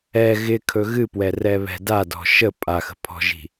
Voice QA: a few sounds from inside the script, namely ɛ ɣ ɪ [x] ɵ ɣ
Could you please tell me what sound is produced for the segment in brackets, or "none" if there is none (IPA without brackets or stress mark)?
kʰ